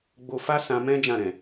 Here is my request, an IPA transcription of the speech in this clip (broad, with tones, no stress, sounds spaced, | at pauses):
ɡ͡b o˧ f a˦ s ã˧ m ɛ̃˦ d͡ʒ ã˦˨ ɾ ɛ̃˨